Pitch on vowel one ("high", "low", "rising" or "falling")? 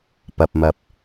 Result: low